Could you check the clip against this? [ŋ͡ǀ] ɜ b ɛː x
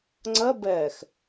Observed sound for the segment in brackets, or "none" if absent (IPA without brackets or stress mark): ŋ͡ǀ